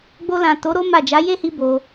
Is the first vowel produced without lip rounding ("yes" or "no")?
no